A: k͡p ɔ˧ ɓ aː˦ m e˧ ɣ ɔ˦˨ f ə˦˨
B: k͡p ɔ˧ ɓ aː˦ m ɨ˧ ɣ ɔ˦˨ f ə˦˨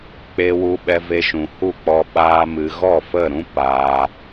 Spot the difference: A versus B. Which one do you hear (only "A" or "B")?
B